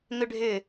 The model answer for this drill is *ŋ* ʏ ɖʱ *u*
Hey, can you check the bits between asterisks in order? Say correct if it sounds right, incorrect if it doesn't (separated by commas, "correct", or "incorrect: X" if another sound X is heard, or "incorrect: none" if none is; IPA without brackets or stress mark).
correct, incorrect: ʏ